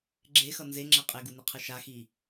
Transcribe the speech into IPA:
ɡ͡ǁ e x ʌ n z e ŋ͡ǁ ɛ qʼ e ɡ u n i qʰ ɯ ʃ a x i

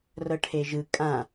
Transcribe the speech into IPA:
r ɤ ʈʰ e ʒ ɯ kʼ ã

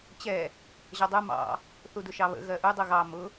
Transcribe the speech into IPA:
t͡ɕ ɛ | ʑ ʌ dˤ u m ɑ̰ | θ u d ʊ ʃ ɑ β ə̰ ɣ ɜ ʔ u dˤ u ɣ ɑ m ʊ

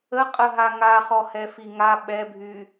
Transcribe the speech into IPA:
ə qʼ ə ɦ a ŋ a χ ɔ h ɛ f i ŋ a ɓ ɛ bʱ y

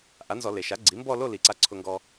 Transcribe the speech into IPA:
ʔ a˩˥ n z ɔ˧˩˧ l e˩ ʃ a˩˥ ɡ͡ǀ i˩˥ m b ɔ˥˧ l o˥˧ l i˩˥ ǀ a˧ ǀʰ ʊ˧ ŋ ɡ ɔ˧

